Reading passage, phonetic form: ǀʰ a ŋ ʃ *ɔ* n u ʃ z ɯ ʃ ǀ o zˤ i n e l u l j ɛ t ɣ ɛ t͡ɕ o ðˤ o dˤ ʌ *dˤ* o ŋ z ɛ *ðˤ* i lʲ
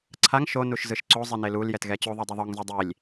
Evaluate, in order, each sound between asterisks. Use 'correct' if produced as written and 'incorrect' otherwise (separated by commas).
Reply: incorrect, incorrect, incorrect